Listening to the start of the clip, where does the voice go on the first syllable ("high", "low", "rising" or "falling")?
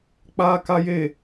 high